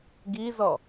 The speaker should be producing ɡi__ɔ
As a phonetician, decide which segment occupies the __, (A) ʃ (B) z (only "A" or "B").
B